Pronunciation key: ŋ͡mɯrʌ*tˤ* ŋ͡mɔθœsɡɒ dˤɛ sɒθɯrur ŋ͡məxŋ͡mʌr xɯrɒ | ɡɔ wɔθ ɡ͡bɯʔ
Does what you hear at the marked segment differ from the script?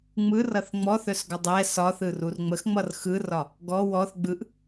yes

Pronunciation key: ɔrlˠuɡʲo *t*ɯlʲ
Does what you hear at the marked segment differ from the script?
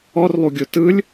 no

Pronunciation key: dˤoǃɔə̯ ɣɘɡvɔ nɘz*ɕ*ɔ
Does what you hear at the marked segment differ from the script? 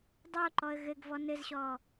no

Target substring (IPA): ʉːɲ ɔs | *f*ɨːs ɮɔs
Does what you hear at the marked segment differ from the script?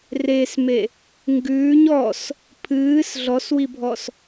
yes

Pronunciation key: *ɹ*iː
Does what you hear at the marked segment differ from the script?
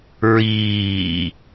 no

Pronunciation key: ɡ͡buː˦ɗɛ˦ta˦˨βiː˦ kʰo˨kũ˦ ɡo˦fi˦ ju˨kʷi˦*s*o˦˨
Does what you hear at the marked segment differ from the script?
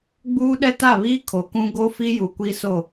no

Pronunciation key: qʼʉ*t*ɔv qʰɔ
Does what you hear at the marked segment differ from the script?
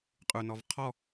yes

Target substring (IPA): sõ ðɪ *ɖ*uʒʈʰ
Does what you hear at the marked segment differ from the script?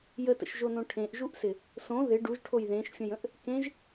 no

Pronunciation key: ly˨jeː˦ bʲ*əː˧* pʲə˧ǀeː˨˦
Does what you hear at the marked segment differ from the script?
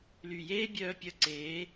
yes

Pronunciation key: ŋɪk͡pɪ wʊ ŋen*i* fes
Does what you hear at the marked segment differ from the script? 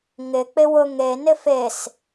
yes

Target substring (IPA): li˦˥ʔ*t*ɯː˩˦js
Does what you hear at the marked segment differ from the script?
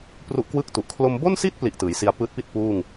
no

